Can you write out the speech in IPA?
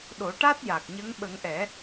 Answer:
ɗo˨˩˦ ʈa˦˥t̚ja˨˩k̚ɲə˧˥ŋ ɓə˨˩˦ŋʔɛ˨˩˦

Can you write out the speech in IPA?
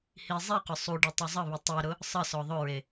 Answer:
hi zˤiqʊ sˤuɖi tˤuzˤəβi tˤiɾʊ | sˤə sɔðˤʊɹe

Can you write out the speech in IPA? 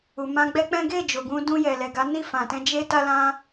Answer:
u˨mã˧ɡ͡bɛ˦k͡pɛ̃˦ ɡe˦˨ d͡ʒo˨ɡũ˧ dũ˧jɛ˨lɛ˨ɡa˨˦ ni˦˨fã˨tɛ̃˧ d͡ʒe˦ta˦lã˦

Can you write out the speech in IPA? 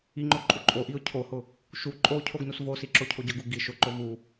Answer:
iŋ͡ǃo ǃʼuǃʼoʔiʊ̯ cʰohʊ | ʃu ǃʼo cʰoɡnusvosi ǁocʰoɟʊɡu ɡi ʃʊǃo vu

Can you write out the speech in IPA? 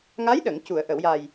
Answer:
ŋa˧˥jɗə˨˩˨ŋ cu˨˩˨ə̯ʔə˨˩˨wja˨˩j

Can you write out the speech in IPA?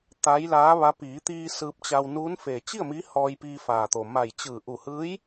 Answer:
t̪a˧˥jlaː˧˥ʋa˧˥ piː˩˧t̪iː˧ sɯː˧p̚t͡ɕa˧wnuː˧˥n feː˩t͡ɕi˥˨ə̯ mi˧˥hɔː˧jpiː˧ faː˩t̪o˩ ma˧˩j t͡ɕɯː˧˩ʔu˧˩hɯː˧˥j

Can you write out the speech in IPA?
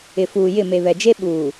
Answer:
ɪ˨fuː˨jɪ˦˨ me˨βɛ˨d͡ʒe˦ ɓuː˨

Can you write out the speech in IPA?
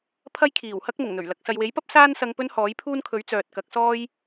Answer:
pʰɐ˥jkʰiː˨˩whɐ˥k̚ mʊ˨˩ŋn̪ɵ˨˩ɥlɐ˨˥k̚ sɐ˨jwe˨˥jpɐ˥p̚ saː˥nsɐ˧ŋ pɵ˥nhɔː˨˥jpʰuː˥nkʰɵ˨˥ɥ t͡sœː˨t̚kɐ˨˥k̚sɔː˥j

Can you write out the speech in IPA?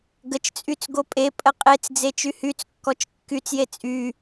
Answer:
ɡət͡ʃt͡sʼyt͡s ɡopʼepʼə qʼet͡sd͡ze t͡ʃyhyt͡skːɔt͡ʃ kːyt͡sje t͡sʼy

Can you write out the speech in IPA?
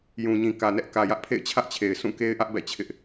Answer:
jũ˨ɲĩ˨kä˨nɛ˦ʔ kä˨jä˦ʔpʰḛ˦˨ɪ̯ t͡ɕʰä˦ʔt͡ɕʰe˨ɪ̯ sʰũ˦˨ke˦ɪ̯ʔä˦ʔ bɛ̰˦˨t͡ɕʰɪ˦ʔ

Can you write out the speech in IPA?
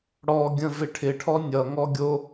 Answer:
ɽɔ ɡʲə̃vɪʈʰɪ ʈʰɔnʲʌ ŋɔɡʲo

